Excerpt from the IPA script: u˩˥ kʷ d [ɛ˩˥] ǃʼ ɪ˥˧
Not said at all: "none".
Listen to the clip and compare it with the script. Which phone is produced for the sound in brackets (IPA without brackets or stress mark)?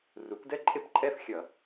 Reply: ɛ˥˧